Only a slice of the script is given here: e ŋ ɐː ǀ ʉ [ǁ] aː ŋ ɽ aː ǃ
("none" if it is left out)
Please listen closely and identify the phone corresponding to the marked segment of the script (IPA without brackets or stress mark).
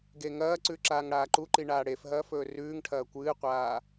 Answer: ǁ